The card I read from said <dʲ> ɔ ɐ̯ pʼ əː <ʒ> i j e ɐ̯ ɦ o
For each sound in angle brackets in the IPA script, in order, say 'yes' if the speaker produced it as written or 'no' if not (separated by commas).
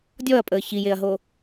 yes, no